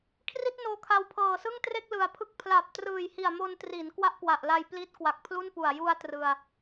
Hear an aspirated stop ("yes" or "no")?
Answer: yes